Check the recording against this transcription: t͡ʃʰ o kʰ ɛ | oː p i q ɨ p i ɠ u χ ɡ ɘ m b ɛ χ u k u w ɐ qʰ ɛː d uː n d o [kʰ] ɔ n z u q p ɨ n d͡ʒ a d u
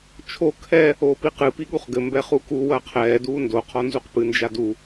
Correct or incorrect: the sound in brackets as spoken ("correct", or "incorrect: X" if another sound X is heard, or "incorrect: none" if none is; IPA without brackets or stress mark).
incorrect: qʰ